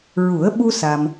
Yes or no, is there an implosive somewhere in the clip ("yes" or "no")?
yes